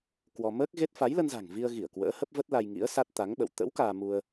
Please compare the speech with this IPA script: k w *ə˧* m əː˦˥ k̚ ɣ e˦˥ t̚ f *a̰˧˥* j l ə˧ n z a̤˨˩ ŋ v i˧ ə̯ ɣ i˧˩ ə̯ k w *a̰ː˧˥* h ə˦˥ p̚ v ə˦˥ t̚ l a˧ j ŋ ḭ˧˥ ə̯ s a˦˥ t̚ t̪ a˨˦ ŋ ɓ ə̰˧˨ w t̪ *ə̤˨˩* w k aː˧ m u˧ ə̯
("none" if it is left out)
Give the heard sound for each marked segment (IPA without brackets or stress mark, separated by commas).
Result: ɔ˧, a˨˦, ə̰ː˧˥, ə̰˧˥